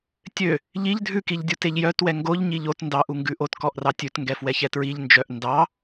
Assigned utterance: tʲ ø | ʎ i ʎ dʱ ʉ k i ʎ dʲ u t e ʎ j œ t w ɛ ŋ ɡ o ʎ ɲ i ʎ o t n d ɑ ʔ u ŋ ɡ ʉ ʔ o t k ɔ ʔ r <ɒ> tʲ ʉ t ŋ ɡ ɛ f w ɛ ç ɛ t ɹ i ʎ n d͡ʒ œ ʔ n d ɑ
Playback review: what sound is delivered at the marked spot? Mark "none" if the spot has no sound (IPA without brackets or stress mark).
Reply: ɑ